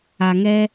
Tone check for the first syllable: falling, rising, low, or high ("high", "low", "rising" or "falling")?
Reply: low